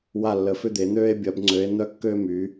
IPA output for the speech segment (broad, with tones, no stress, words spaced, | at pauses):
wa˧˩lːə˩˧ fʏ˧d̪e˩˧n̪øː˧e̯ bʲɐ˩˧b ŋ͡ǀø˩˧e̯ n̪œ˧kːøː˧my˩˧